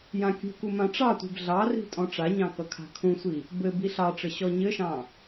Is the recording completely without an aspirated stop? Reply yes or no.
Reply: no